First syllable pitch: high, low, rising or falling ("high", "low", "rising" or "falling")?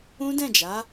high